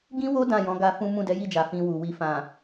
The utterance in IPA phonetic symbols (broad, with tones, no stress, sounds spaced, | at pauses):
ɡ ĩ˦ w o˦ d ã˦˨ j ɔ̃˨˦ ɡ a˧ f ũ˦ m ũ˦˨ d ɛ˨˦ j i˦˨ d͡ʒ a˨ f ĩ˧ w u˨ w i˨ f ã˨